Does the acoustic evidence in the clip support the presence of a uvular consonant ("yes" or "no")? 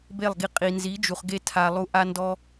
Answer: yes